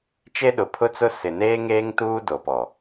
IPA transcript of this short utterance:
t͡ʃ e˦ ɗ ʊ˨ pʰ ʊ˦ t͡s ʊ˦ s ɪ˨ n eː˦ ŋ eː˦ ŋ t uː˦ d o˨ p ɔ˨

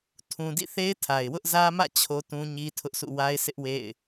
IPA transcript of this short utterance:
tʰ ũ˨ d ḭ˦˨ θ e˦ ɪ̯ tʰ a˨ ɪ̯ w ʊ˦ ʔ z ä˦ m ä̰˦˨ t͡ɕʰ o˦ t ũ˦ ɲ i˦ tʰ ʊ˦ ʔ sʰ ṵ˦˨ w a˦ ɪ̯ sʰ ɪ˦ ʔ w ḛ˦˨ ɪ̯

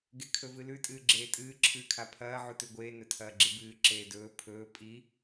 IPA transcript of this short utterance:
ɡ e kʰ ɵ v ɨ l ʉ tʼ ɨː ɡ͡ǁ eː tʼ ɨː ǁʰ ɨː kʰ a pʰ ɐː ʕ u t ʉ ɡʷ eː n ɵ tʰ ɐː ɡ͡ǁ i b ɨː ǁ eː d ɵː pʰ ɵː pʼ i

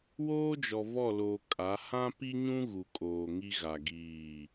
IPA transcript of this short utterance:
w oː˦ d͡ʒ ɔ˨ v ɔ˦˨ l oː˨ kʼ a˨˦ h ã˦ p i˦ ɲ ũ˦ ɣ u˨ kʼ oː˨ ŋ i˦ ɣ a˨ ɡ iː˦˨

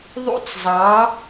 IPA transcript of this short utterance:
ðˤ ṵ˧˩ t͡s zˤ ɑ˩˧

